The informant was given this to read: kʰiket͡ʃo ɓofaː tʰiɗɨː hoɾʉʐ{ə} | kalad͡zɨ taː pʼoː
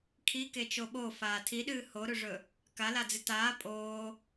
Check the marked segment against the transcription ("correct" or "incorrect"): incorrect